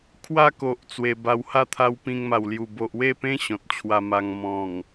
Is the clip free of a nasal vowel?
no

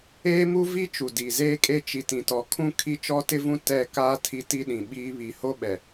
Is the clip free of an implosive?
no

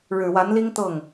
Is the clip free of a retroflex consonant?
no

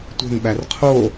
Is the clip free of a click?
yes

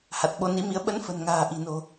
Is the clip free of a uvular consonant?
yes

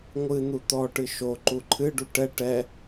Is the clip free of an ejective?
yes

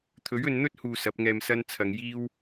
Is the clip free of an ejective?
yes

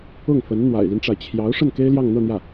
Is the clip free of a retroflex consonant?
no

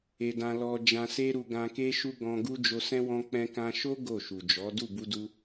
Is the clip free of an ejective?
yes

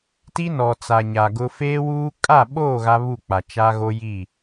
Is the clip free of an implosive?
no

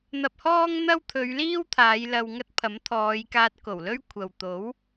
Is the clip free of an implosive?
yes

